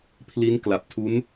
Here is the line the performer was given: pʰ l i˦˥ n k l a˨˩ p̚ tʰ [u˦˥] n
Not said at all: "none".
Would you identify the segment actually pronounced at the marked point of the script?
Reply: u˦˥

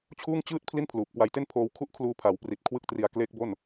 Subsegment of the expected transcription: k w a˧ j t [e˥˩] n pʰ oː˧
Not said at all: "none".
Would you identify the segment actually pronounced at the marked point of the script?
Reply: e˥˩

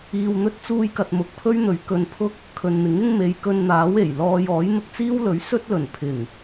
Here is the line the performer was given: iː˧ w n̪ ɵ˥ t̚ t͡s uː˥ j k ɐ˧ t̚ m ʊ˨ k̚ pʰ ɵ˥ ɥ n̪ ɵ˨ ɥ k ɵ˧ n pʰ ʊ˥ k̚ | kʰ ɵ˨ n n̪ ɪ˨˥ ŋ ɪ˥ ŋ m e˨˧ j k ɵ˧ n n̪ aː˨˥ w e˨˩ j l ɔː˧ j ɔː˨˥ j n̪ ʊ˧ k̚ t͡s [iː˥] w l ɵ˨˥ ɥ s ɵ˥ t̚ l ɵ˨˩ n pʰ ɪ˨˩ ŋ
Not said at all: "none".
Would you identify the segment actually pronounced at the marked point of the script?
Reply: iː˥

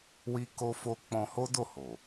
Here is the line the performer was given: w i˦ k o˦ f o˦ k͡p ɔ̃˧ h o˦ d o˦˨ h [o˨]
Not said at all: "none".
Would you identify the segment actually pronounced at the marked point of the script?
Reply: o˨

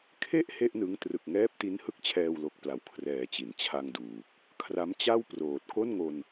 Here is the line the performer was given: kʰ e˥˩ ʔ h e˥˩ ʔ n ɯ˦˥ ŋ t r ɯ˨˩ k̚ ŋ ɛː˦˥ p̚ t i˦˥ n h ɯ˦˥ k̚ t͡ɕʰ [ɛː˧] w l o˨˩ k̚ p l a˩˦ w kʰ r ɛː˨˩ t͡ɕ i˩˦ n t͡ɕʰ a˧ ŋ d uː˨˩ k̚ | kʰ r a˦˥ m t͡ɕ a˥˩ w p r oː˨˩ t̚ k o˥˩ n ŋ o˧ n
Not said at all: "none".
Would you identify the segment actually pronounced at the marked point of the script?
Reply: ɛː˧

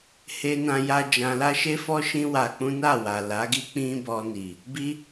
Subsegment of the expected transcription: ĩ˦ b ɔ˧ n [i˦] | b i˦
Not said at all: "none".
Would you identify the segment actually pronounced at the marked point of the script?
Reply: i˨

